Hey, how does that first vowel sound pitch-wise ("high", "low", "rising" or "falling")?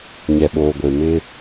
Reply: low